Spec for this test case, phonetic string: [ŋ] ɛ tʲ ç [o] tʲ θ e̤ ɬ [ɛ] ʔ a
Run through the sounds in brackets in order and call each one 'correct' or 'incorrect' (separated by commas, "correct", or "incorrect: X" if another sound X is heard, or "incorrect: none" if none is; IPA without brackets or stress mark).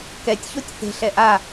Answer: incorrect: k, correct, correct